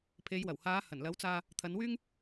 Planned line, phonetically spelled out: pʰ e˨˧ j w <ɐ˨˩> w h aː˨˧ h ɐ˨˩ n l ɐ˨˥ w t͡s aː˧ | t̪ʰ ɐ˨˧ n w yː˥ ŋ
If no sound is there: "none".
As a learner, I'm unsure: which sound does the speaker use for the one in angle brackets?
ɐ˨˩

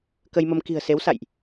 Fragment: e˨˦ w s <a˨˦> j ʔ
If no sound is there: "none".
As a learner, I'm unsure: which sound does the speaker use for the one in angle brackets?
a̰˧˨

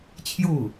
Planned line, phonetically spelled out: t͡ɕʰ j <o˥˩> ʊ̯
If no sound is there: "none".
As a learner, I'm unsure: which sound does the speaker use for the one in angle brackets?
o˥˩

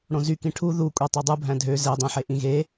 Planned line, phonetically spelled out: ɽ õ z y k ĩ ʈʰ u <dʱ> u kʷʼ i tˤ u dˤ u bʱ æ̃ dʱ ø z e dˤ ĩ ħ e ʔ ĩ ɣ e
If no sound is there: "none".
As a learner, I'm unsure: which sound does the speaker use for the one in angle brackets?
ð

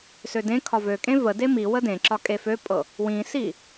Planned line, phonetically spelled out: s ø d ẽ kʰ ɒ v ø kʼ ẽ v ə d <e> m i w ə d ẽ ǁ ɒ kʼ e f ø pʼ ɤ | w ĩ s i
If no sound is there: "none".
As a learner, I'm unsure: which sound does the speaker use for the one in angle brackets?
e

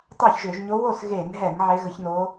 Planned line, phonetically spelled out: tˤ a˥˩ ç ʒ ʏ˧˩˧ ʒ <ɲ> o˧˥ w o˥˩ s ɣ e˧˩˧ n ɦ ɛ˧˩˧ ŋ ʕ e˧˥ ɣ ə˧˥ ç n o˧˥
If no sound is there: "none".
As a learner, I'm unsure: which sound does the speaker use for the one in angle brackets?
ɲ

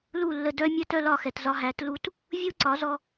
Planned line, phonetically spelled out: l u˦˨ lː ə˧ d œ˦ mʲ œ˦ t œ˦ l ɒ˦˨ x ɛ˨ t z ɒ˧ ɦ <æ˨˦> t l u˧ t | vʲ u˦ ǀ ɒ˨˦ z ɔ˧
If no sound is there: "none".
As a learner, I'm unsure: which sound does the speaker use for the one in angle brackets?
æ˨˦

